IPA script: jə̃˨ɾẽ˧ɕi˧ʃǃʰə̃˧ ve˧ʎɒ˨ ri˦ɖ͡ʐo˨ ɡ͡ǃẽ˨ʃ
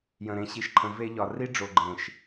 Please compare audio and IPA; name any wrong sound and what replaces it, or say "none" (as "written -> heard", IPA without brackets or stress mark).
none